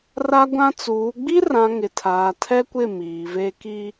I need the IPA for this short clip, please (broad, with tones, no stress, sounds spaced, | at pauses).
r a˦ ɡʷ ã˦ t͡s uː˨˦ ɡ͡b i˦ r ã˨ ŋ ɪ˨ tʰ aː˨ tʰ ɛ˦ kʷ ɪ˦˨ m iː˨ v e˦ k i˦